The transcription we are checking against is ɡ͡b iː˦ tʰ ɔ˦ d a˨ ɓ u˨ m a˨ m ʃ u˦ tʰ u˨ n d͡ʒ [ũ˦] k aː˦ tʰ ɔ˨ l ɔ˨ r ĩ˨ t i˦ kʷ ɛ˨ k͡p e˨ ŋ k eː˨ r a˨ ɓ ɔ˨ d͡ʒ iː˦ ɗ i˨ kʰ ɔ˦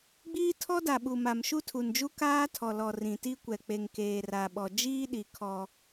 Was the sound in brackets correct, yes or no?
no